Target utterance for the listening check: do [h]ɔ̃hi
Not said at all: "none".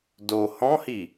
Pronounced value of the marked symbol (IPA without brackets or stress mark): h